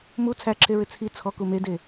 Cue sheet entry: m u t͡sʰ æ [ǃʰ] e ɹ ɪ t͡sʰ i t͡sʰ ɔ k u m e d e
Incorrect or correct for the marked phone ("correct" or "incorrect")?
incorrect